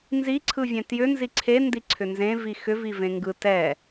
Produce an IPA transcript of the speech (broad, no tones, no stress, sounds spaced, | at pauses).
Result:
n z i ǀʰ ɯ vʲ ɛ̃ t j ʏ n z i ǀʰ e n d i ǀʰ ʏ n z ẽ v i x ʏ v i v ẽ ŋ ɡ ɯ t ɛ